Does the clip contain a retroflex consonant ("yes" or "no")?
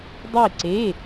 no